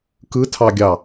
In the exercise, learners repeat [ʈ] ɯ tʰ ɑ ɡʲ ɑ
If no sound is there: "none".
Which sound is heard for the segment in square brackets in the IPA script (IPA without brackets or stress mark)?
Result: k